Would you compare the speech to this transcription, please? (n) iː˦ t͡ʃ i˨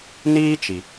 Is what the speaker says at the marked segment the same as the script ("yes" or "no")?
yes